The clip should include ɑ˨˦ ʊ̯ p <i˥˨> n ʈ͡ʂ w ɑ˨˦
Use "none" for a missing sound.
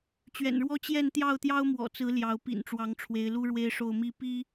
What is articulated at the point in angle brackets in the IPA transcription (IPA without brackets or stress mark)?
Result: ḭ˨˩